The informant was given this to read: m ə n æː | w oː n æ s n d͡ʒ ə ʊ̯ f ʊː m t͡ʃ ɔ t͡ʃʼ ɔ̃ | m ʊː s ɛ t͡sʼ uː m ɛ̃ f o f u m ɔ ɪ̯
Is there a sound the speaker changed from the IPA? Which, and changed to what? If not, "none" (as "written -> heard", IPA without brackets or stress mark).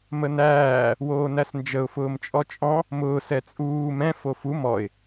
t͡ʃ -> t͡ʃʼ